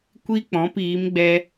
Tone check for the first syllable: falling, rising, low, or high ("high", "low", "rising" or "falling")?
high